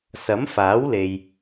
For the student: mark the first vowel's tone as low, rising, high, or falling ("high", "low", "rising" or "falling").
rising